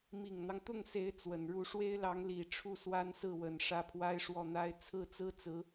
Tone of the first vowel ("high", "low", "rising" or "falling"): low